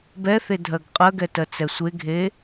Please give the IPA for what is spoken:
b ɛ θ e dʱ ɜ ɡ qʼ ɜ ɡ ɛ t ɜ t͡s ɛ sʷ e ɡʱ e

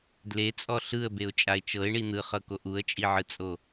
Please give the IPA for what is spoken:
d l e t͡sʼ ɔ ɬ ɯ ə̯ b e ʊ̯ t͡ʃʼ a ɪ̯ t͡ʃ ɤ ɪ̯ ɳ i n̪ ɯ χ ɤ k o ʔ u ə̯ t͡ʃʼ i ʕ ɯ t͡sʼ o

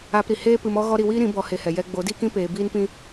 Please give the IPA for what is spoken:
aː˧ p ɾ i˨ h eː˦ p ɨ˧ m ɔ˦ ɣ ɔ˦ ɾ i˧ w iː˦ ɾ ĩ˨˦ b ɔ˦ h e˦ h ɛ˧ j ɛ˧ ɡ͡b o˨˦ d iː˦ k ĩ˦ p eː˧ b iː˦ n p ĩ˦

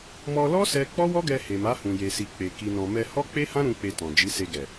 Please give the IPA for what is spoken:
m ɔ˧ l ɔ˦ s ɛ˦ k͡p ɔ˦ w ɔ˦ ɡ ɛ˧ h e˨ m a˨˦ h ũ˧ j e˧ s i˧ k͡p e˧ k i˨ n ɔ̃˨ m ɛ˧ h ɔ˦ k͡p e˦ h ã˦ ɾ ũ˦ k͡p e˧ t ɔ̃˨ d͡ʒ i˨˦ s e˧ ɡ ɛ˨

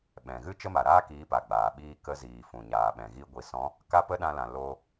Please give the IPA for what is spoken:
ɓ ɛ̃˨ ɣ ɨ˦ t͡ʃ ə˦ m a˨ ɾ aː˦ k iː˨˦ p a˨ ɡ͡b aː˨ ɓ iː˦ k ə˧ z iː˨ f ũ˨ ɲ aː˨ ɓ ɛ̃˨ ɣ i˧ ɡʷ i˨ s ɔ̃˨˦ | k a˦ p ə˦ ɗ ã˧ l ã˨ l o˧

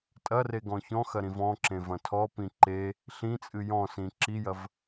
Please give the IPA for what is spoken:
tʼ ɐ r e ɡ ɔ̃ ç ɔ̃ x ɐ ɾ ĩ v ɔ̃ ǁ ẽ v ɐ̃ tʰ ɔ p ĩ ǃ e | ɬ ĩ t͡sʼ ɨ j ɔ̃ s ĩ ǁ i j ɐ v

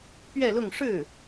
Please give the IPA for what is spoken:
p ɥ ɛ˥˧ l ʊ˥˧ ŋ ʂ ɻ̩˥˩

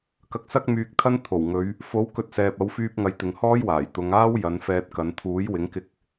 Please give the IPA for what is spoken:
k ɐ˧ k̚ s ɐ˥ k̚ m yː˧ k̚ t̪ʰ ɐ˥ n t̪ʰ o˨˩ w ŋ ɵ˨˧ ɥ | f o˨˥ w k ɵ˨˥ t̚ s ɛː˨ p̚ ɐ˨˥ w f yː˧ p̚ ŋ ɐ˨˧ j t̪ ɪ˨ ŋ h ɔː˥ j w aː˨˩ j t̪ ʊ˨˧ ŋ aː˥ w j ɐ˨˧ n f ɛː˧ t̚ k ɐ˨˧ n t̪ʰ uː˨˥ j w ɪ˨˥ ŋ k ɪ˧ k̚

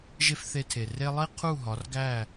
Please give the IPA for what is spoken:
ʒ e˦ f θ e˧ tʰ e˨ r e˦ lˠ i˦ qʰ u˦˨ ɦ ɒ˨˦ r ɡ æ˦˨

